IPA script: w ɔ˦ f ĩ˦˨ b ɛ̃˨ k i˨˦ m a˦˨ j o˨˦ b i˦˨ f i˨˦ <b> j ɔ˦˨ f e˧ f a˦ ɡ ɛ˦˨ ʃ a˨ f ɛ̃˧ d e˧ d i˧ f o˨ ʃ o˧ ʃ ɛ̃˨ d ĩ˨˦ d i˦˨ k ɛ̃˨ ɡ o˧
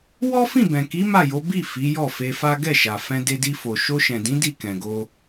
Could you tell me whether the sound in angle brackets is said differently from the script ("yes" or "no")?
yes